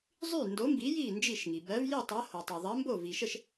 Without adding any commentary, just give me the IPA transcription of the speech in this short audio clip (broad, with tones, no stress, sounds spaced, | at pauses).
zˤ y˥˩ n d o˨˥ m b i˨˥ j i˥˩ n d͡ʒ i˥˩ ʃ ŋ i˩ b ɜ˨˥ v j i˥˩ tˤ ɜ˨˥ h o˩ tˤ o˩ ðˤ ɜ˨˥ m b o˥˩ v i˩ ʃ ə˥˩ ʃ